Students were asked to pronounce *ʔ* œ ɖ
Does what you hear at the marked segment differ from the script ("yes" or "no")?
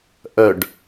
no